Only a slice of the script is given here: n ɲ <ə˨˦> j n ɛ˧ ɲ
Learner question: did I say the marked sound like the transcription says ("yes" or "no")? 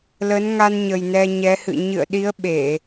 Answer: no